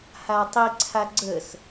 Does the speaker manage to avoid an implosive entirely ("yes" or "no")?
yes